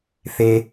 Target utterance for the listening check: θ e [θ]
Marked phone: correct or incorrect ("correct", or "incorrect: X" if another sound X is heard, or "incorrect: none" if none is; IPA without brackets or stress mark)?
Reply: incorrect: none